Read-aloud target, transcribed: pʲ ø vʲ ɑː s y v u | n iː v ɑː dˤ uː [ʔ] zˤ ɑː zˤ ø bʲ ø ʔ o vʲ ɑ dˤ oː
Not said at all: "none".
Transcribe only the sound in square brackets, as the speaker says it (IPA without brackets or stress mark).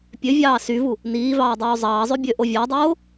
none